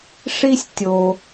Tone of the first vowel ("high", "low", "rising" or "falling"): high